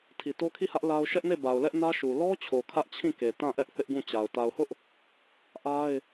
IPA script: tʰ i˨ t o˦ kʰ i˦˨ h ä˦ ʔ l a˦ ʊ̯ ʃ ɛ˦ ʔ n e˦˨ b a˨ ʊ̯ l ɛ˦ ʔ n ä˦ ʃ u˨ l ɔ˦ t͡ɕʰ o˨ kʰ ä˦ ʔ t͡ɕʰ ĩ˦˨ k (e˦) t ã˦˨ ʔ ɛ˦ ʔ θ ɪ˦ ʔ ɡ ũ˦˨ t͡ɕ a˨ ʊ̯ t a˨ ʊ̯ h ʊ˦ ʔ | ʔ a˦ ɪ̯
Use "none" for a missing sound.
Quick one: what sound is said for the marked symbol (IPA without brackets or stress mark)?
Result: e˨